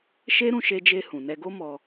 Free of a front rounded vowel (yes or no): yes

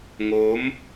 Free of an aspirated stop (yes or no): yes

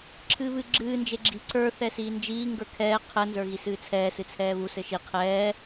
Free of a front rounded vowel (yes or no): yes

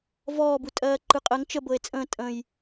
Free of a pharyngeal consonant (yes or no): yes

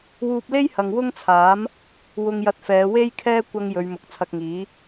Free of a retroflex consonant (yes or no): yes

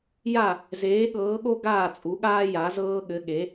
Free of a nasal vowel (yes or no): yes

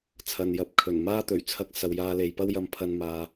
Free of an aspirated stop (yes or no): no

